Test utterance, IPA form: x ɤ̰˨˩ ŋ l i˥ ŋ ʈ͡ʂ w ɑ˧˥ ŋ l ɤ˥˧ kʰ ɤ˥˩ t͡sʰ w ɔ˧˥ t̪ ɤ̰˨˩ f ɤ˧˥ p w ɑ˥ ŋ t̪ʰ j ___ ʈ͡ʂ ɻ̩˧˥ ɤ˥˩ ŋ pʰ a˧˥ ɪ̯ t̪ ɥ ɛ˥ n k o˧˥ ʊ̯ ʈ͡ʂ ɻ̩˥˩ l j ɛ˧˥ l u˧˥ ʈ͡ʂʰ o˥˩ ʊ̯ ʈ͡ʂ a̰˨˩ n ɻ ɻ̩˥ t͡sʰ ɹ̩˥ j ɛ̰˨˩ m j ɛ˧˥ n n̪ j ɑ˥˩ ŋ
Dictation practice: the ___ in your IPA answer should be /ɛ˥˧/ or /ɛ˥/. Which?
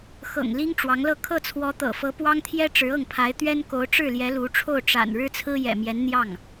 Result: ɛ˥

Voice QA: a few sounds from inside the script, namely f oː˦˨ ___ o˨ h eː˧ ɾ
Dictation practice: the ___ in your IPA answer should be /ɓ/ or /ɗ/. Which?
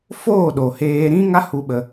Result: ɗ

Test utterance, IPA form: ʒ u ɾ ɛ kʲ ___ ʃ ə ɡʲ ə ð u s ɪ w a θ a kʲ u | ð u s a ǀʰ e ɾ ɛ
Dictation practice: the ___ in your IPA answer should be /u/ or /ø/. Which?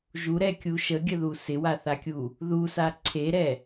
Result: u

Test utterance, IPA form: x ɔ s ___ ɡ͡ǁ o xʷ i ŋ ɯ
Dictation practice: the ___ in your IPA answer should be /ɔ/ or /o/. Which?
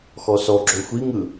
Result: ɔ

